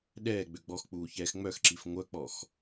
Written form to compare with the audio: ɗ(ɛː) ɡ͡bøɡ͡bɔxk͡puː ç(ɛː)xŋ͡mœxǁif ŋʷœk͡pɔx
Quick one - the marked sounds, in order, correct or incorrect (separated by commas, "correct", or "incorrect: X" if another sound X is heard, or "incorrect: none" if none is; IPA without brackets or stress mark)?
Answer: correct, correct